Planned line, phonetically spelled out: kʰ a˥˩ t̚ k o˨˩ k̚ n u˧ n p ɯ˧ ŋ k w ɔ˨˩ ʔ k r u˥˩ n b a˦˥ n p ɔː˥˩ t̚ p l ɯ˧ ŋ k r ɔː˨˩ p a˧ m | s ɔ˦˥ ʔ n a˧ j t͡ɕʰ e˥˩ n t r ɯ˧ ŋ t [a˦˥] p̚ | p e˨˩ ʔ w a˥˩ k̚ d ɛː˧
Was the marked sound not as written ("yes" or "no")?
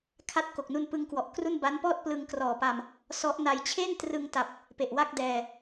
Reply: yes